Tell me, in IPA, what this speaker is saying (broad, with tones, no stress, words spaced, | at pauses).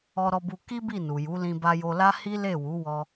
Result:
ɔ˧ɾɔ˧bu˧ ki˦ bi˦˨nu˨ju˨˦ lĩ˧ba˧jo˧la˦ hi˦le˦˨wu˨˦wɔ˧